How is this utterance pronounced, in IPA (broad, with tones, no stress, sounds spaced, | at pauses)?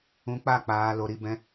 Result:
ũ˧ k͡p a˦˨ k͡p aː˧ l o˧ ɾ i˧ b ɛ̃˦